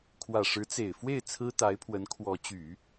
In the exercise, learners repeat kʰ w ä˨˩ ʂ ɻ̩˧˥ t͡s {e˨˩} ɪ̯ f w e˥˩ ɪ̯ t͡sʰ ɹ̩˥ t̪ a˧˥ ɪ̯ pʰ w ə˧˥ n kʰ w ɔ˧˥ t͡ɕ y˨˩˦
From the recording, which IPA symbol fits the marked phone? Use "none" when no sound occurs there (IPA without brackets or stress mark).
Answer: e˨˩